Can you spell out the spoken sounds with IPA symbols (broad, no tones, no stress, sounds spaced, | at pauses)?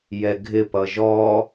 j ɛ ɡʱ ɪ p ʌ ʒ ɔ